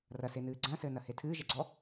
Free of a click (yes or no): no